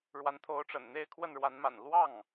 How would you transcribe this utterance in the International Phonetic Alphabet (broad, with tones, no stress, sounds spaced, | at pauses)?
ɻ w a˧˥ n t̪ʰ o˧˥ ʊ̯ ʈ͡ʂ ə̰˨˩ n n̪ e˥˧ ɪ̯ kʰ w ə˥˩ n ɻ w a˧˥ n m a̰˨˩ n l w ɑ˥˩ ŋ